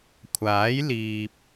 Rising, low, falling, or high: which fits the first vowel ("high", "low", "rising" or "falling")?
rising